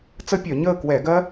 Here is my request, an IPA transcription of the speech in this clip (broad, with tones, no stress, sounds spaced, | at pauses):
t͡s ə˦˥ pʲ œ˧˩˧ ɲ əː˥˨ k w ɛ˧˩˧ ɡ ɜ˦˥